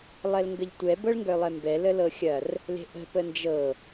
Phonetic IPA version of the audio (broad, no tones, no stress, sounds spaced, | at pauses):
lˠ ɛ l ŋ ɡ ə ʎ tʷ ɛ b ɤ ɭ ŋ ɡ œ lˠ ɛ m b ɛ l ə l ɤ xʲ ɐ r | l e̤ ʔ ə̤ p ə n d͡ʒ ɤ